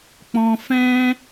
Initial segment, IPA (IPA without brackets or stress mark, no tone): k͡p